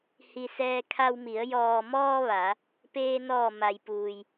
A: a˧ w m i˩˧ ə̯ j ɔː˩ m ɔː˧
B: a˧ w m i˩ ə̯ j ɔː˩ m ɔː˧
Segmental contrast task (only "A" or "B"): A